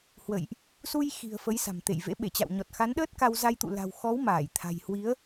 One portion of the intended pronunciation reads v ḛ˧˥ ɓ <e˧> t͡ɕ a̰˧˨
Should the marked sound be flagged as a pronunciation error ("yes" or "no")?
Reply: yes